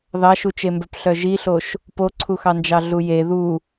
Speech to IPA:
ðɑʃut͡ʃembœp ɬœʒiɬoʃ | poǀʰuxɑnd͡ʒɑ ɮuje ðu

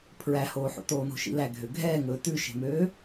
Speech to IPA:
pʰɹæhoːħo̰ toːno̤ʃḭlæ ɡʱøɡʱɛːŋɵː tʉʃe̤møː

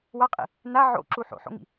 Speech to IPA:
waqʼḭ | na ʕo̰ǁu ħo̰ħo̰ŋḭ

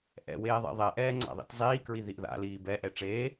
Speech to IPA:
ʔɛ̰weːðˤɛ̰ ðˤɛʔɛːŋ͡ǀa̰ðˤḭt zˤiːkɹiðiʔ ða̰liː bɛʔɛ ʈ͡ʂeː

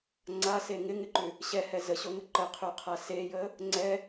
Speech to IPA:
ŋ͡ǀase ŋɪŋɪǃʉ | ɕɛhɛ zəɕoŋə ǃəqʰʉqʰa sejə | ŋ͡ǀɛ

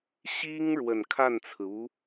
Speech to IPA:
ɕi˥ŋ ɻwə˨˩nkʰa˥˩nt͡sʰɹ̩˩u˧˥

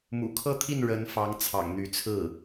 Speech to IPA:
mṵ˨˩kʰɤ˥˧t̪ʰi˥˩n ɻə˧˥nfɑ˧˥ŋ t͡sʰɑ̰˨˩ŋn̪y˧˥t͡sʰɹ̩˥˩

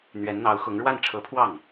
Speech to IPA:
n̪ɥɛ˧˥nn̪ɑ˧˥ʊ̯xʊ˧˥ŋ ɻwa˥˩nʈ͡ʂʰɤ˧˥pʰwɑ˥˩ŋ

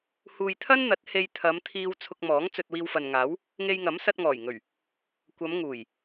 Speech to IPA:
huː˨jt̪ʰɐ˥nn̪ɐ˨˥t̚ he˧jt̪ʰɐ˨˧mt̪ʰiː˧w t͡sʰʊ˧k̚mɔː˨˥ŋ t͡sɵ˧t̚wiː˧wfɐ˨nŋaː˨˥w | ŋe˧jŋɐ˨˥msɐ˧t̚ ŋɔː˨˩jŋɵ˨˩ɥ | kʷɐ˨˧mŋuː˨˩j

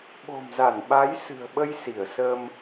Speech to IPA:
ɓo̤˨˩mza˧˩n ɓa˨˦jsɨ̤˨˩ə̯ ɓə˧j si˧˩ə̯sə˧m

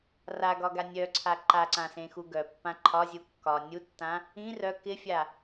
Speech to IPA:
raɡɒɡa nʲœǀʰa ǃaǀãsẽxu ɡœpːã ǃʰɒzʲu kːɒ nʲutːã | ĩ rœ kɪfʲa

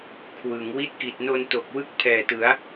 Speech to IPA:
kʰwɯ˩˦ŋ wi˦˥t̚ki˨˩t̚no˧nto˨˩k̚ wɯ˥˩k̚pʰɛː˨˩tɯ˩˦a̯

